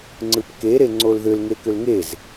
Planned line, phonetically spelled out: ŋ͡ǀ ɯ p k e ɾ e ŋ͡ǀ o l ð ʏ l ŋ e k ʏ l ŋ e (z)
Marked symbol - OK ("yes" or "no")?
yes